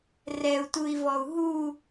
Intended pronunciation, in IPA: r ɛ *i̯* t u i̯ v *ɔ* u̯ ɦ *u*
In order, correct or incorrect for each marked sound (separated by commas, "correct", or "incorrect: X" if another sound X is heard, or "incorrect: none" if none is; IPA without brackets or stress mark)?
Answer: incorrect: u̯, correct, correct